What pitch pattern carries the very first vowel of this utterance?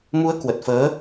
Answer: rising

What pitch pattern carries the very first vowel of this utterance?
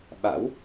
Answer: rising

